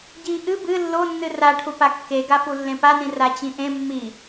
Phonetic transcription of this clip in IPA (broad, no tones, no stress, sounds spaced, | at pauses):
ɟ i ʔ ɨ b ɨ lː o nː ɨ r a ʈʰ u p a kː e ɡ a f u lː ẽ p a n ĩ r a t͡ɕ ĩ ʔ ẽ mː i